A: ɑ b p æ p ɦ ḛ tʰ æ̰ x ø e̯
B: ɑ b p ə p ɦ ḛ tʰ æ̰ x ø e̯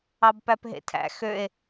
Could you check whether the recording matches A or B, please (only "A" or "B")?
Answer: A